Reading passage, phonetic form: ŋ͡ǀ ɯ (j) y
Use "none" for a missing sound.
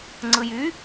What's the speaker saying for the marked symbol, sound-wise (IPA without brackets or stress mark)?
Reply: j